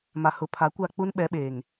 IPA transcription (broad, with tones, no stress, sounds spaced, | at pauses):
m a˨ h ʊ˨˦ pʰ a˨˦ kʷ a˦˨ k͡p u˦ n ɓ ɛ˨˦ ɓ eː˨ ŋ